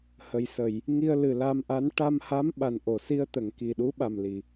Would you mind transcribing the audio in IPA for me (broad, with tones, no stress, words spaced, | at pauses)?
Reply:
hə˨˩jsə˨˩˨j | ŋi˧ə̯ lɨ˨˩la˧mʔa˧˥n ʈa˧mha˧˥m ɓa˨˩nʔo˨˩˨si˧ə̯t̪ə˨˩˨ŋ ki˨˩ɗu˧˥ ɓa˨˩mli˨˩˨